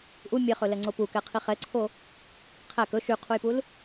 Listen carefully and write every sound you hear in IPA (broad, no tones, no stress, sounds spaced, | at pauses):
ʔ u mʲ ɛ χ ɵ l ɛ ŋ͡ǀ o p u k ɛ qʰ i χ ɛ ǀʰ o | qʰ æ k ɵ ʃ y qʰ u j p u l